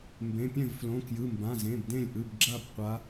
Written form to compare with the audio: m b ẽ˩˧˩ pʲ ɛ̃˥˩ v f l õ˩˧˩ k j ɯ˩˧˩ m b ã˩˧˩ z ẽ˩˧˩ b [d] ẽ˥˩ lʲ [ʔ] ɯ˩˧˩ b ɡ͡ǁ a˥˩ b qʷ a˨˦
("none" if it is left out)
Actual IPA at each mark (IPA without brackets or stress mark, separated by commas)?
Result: d, ʔ